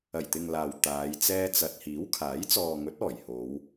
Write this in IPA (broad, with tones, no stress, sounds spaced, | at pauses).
ɐ˨˩ j t̪ ɪ˨ ŋ l aː˨ w t̪ aː˨˧ j t͡s ɛː˧ t͡s ɐ˨ t̚ h iː˨˥ w kʰ aː˨˥ j t͡s ɔː˨ ŋ ɵ˨˥ t̚ ɔː˨˩ j h o˨˧ w